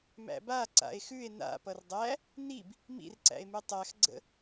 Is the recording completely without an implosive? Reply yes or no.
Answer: yes